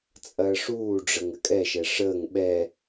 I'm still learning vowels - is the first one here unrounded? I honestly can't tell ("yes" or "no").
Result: yes